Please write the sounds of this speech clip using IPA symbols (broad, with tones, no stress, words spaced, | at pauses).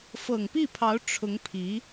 fɤ˨˩ŋpi˥˩pʰɑ˧˥ʊ̯ ʈ͡ʂʰʊ˧˥ŋpʰi˧˥